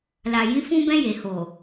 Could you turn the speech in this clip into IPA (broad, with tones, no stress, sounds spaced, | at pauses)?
l a˨ j ĩ˨˦ f ũ˧ b ɛ̃˧ j e˨ h o˨